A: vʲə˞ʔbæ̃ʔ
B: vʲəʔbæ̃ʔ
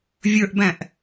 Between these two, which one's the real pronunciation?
A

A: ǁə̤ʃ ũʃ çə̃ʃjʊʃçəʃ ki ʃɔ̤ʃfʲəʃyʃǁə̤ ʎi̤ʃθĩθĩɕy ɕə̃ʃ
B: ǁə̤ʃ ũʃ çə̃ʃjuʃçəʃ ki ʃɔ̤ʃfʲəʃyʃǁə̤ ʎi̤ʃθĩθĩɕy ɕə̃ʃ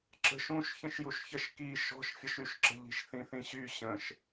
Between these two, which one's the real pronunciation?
B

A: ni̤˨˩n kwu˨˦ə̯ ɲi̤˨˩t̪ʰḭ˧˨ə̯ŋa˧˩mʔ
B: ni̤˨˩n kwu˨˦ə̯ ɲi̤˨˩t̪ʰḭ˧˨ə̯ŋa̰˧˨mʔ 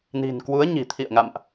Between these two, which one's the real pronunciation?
B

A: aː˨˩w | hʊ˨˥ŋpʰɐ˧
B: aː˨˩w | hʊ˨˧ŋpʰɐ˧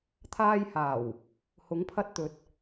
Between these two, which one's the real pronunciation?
A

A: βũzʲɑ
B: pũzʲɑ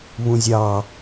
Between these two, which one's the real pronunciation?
A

